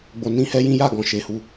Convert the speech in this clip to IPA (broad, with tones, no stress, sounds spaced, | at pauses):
ɡ͡b o˨ n ĩ˧ h ɛ˦ j ĩ˦ j a˦˨ ɡ ɔ̃˨ ʃ e˨˦ h u˧